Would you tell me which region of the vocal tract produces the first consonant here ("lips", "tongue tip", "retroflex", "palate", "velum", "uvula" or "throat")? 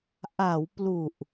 throat